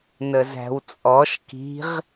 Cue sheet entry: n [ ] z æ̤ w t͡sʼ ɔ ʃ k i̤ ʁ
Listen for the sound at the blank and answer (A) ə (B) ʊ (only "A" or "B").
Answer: A